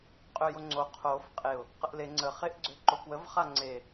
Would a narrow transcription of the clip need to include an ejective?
yes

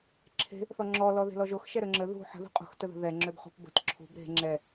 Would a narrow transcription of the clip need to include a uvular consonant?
yes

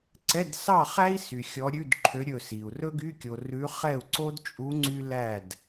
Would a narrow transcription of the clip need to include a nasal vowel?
no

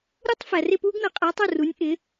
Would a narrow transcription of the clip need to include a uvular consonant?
yes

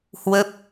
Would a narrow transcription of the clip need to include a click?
no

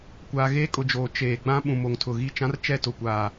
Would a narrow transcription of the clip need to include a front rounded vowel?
no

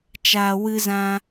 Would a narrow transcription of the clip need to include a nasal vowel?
yes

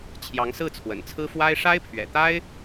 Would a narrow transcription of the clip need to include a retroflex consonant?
yes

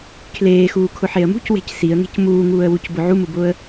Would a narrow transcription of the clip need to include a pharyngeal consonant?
yes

